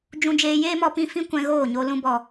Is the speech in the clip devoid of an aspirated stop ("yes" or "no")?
yes